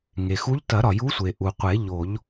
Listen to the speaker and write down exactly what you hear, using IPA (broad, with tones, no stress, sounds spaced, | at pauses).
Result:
ŋ e˩ x u˧˥ ʎ t ɐ˨˩˦ ɾ ɒ˩ j u˧˥ sʷ e˩ ʔ u˩ qʷ e˨˩˦ ʎ o˨˩˦ ʎ